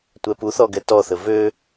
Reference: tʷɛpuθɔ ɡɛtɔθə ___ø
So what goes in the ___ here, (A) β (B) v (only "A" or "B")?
B